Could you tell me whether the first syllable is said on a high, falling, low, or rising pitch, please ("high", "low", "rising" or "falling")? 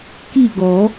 falling